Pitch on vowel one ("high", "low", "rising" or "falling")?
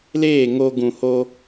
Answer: falling